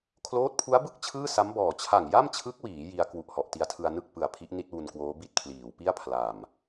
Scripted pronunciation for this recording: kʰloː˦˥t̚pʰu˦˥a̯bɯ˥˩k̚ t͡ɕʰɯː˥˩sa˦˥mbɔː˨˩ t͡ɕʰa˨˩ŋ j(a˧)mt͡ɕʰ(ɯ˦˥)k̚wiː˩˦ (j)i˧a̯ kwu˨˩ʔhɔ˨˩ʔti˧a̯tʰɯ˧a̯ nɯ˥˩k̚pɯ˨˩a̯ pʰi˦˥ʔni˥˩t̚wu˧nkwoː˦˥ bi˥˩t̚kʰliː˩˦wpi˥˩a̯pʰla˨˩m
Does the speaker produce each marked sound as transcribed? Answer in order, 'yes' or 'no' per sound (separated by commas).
no, yes, yes